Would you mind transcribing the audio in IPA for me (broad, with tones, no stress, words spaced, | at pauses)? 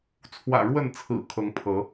t͡sʰwä̰˨˩ ɻwə˥˨n t͡sʰɹ̩˨˩ kʰɤ˨˦ŋpʰɤ˨˦